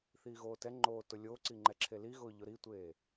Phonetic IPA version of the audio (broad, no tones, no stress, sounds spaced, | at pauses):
θ iː ɣ oː t ɛ ŋ͡ǃ oː t ʊ lʲ o ǀ i ŋ͡ǃ ɛ ǁʰ e l i ɣ ʊː ʎ ʊ ɾ i tʷ eː